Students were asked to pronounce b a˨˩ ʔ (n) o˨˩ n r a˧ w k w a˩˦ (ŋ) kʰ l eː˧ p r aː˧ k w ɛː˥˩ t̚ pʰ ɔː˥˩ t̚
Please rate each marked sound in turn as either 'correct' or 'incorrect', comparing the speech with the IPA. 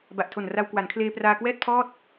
incorrect, incorrect

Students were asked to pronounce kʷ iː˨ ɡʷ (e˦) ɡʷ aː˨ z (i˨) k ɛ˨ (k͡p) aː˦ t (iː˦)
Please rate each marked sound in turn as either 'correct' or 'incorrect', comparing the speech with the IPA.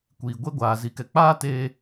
correct, correct, correct, incorrect

